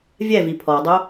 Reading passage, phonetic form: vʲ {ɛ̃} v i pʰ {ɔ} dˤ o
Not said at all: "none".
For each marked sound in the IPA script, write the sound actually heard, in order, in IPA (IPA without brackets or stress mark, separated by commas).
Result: ɛ, ɔ